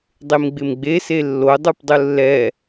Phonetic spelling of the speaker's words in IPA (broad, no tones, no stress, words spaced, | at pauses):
dˤemɡ͡bɪmɡ͡be selːo dˤupdˤʊlːɛ